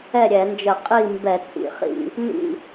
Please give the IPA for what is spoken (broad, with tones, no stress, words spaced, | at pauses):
ɛ˥˨ɾʲɛ˧˩˧nd͡ʒə˧˩˧ qʼi˥˨mbɛ˧˩˧ t͡sʼḭ˧˩˧χḭ˥˨ | nḭ˥˨